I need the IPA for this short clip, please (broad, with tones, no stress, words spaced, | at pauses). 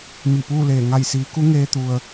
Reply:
mi˧˩puː˥˨leː˧˩ ŋa˧˩jsiː˩˧ku˧˥ŋeː˧ t̪u˩ə̯